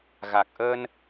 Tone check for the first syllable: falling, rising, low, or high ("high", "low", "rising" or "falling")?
low